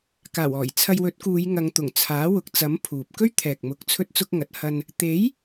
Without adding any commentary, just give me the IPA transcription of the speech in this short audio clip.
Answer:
k aː˨˩ w ɔː˨˩ j t͡sʰ ɐ˧ j w ɵ˨˥ t̚ k uː˨˧ j ŋ ɐ˨˧ ŋ t̪ ʊ˨˩ ŋ t͡sʰ aː˨˥ w ʊ˨˥ k̚ t͡s ɐ˨˥ m pʰ uː˨ p̚ k ɵ˥ ɥ t̪ʰ ɛː˨ k̚ m ʊ˨˥ k̚ t͡sʰ ɵ˥ t̚ t͡s ʊ˥ k̚ ŋ ɐ˨˥ t̚ h ɐ˧ n | t̪ e˨˥ j

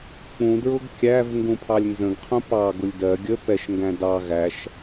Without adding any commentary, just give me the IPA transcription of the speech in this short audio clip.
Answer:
k͡p ũ d ɹ ʊ ɡ kʲ æ v ŋ ɡ ũ pʰ ɑ lʲ n z ə̃ ɡ qʰ ũ p ɑ ɡ ʊ lʲ d ɜ ɡʲ ə p ɛ ʃ ŋ ɡ æ̃ d ɑ ɣ æ ʃ

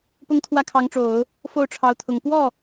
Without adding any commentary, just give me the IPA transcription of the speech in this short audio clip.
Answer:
p ʊ˥ ŋ t̪ʰ w ä˥˩ kʰ ɑ˧˥ ŋ ʈ͡ʂ o˨˩˦ ʊ̯ | f o˥˩ ʊ̯ ʈ͡ʂʰ ɑ˧˥ ʊ̯ t̪ʰ ʊ˨˩ ŋ p w ɔ˥˩

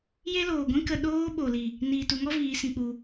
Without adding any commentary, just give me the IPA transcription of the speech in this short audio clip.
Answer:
j e˦ l oː˨ ɡʷ ĩ˦ k ə˦˨ ɗ oː˦ ɓ o˨ l i˨ | n iː˨ t u˨ ŋ ɔ˦ v iː˨˦ s ĩ˧ k͡p u˧

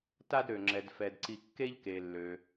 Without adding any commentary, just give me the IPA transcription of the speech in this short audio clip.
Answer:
t a˦ d ɾ ø˩ ŋ͡ǁ ɛ˩ d f ɛ˩ d ǀ i˨ kː e˦ ʎ k e˩ lː ø˩

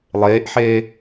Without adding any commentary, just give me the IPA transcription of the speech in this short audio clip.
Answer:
lˠ eː ʔ ħ eː

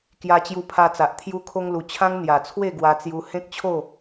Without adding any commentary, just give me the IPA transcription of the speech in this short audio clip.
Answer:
k j a˧ t͡ɕ j u˧ pʰ a˧ t͡s a˨ ʔ t̪ʰ j u˧ kʰ o˧ ŋ l u˨˩ t͡ɕʰ ã˦ ŋ n̪ j a˨˩ t͡sʰ w e˥˧ ɡ w a˧ t͡s j u˧ h ẽ˦ k̚ t͡ɕʰ o˥˧

